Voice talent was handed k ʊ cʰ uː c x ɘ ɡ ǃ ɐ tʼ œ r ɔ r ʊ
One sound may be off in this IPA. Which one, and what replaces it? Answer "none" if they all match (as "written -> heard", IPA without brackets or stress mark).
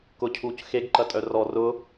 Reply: ɘ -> e